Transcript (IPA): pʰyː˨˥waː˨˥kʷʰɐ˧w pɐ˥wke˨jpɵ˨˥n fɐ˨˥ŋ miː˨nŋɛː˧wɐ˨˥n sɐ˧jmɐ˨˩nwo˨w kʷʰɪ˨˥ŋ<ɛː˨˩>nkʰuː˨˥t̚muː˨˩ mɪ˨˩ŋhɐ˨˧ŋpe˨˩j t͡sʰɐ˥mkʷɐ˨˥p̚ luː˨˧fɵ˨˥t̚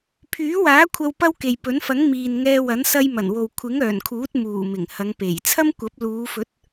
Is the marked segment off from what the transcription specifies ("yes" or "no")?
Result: yes